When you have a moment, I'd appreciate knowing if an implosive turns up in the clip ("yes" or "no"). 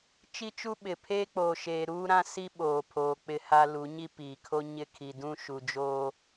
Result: yes